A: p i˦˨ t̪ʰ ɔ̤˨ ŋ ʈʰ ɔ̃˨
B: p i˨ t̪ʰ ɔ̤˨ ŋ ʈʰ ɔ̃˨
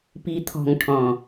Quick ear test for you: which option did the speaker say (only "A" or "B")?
B